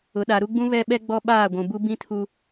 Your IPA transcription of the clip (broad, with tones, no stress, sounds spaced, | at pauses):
ʊ˨ ɗ a˨ ɾ u˦ ɡ͡b ũ˦ β ɛ˦ ɓ ɛ˦ ɡ͡b ɔ˦ ɓ aː˦˨ ɡʷ ũ˨ b u˦ b ĩ˦ tʰ u˦